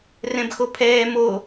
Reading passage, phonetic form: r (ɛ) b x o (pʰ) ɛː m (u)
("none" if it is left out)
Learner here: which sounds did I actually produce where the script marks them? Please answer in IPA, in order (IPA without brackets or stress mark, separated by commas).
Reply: ɛ̃, pʰ, o